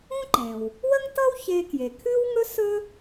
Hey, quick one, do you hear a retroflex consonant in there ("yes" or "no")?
no